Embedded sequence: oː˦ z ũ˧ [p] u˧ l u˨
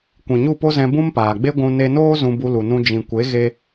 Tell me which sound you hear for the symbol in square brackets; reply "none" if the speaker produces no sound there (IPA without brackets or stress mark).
b